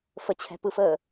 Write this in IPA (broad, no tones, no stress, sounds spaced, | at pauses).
f ə t͡ɕʰ ɛ̤ p ɯ f əː